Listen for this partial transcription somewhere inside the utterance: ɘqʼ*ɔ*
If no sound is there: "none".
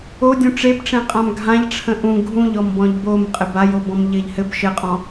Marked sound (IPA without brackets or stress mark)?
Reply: ɔ̃